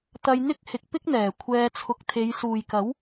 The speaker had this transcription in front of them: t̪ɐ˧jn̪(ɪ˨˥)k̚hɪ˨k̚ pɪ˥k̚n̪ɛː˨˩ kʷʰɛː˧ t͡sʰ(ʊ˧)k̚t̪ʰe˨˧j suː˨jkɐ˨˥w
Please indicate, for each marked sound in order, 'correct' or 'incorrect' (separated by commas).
incorrect, incorrect